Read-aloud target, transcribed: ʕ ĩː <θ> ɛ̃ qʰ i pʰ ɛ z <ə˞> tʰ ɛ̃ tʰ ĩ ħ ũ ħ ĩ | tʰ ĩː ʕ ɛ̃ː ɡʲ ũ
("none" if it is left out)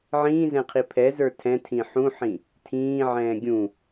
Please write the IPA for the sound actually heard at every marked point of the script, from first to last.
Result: z, ə˞

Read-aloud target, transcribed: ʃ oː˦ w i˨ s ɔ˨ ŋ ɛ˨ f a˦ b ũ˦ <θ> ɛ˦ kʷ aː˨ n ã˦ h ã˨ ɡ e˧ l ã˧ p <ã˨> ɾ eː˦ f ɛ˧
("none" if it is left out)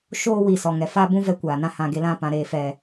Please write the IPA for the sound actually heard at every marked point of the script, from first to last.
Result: v, ã˧

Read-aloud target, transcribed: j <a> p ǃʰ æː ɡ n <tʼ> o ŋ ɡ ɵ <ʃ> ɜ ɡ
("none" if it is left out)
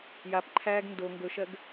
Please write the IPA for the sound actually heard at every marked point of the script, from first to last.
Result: a, d, ʃ

